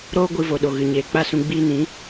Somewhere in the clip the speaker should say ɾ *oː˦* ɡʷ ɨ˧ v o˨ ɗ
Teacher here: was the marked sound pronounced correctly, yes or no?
yes